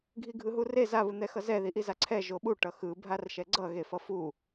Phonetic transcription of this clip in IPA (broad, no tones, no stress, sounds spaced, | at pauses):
ɡʱ i ɡʱ ɯ ɦ u r e z a β ɯ n̪ ɛ x ʌ z ɛ ð i ʔ i z a ǀʰ ɛ ʒ o ɓ u ʈ ʌ x ɯ bʱ a r ʃ ɛ ɡ͡ǀ ʌ ɣ e f ʌ f u